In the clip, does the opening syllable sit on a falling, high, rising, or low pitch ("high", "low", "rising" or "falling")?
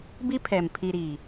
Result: high